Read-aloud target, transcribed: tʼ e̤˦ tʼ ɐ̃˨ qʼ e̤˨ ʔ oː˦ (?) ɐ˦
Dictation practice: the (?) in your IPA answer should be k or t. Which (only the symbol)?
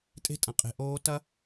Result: t